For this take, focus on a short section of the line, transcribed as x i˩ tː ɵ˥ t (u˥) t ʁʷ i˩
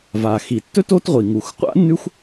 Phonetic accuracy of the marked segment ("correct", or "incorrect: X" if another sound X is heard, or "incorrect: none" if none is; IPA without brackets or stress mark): incorrect: o˥